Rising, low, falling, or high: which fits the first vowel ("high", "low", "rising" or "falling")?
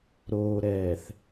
low